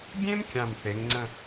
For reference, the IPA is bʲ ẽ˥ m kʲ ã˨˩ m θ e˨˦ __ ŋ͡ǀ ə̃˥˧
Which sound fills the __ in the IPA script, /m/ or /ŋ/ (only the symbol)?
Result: ŋ